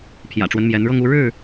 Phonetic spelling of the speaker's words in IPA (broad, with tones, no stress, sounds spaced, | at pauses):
pʰ j ä̰˨˩ ʈ͡ʂ w ə˦ n m j ɛ˨˦ n ɻ ɤ˦ ŋ u˦ ɻ ɻ̩˥˨